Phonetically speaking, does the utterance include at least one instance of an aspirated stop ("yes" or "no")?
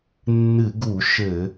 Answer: no